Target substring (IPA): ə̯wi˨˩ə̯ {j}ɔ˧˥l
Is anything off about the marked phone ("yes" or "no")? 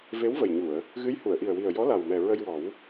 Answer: no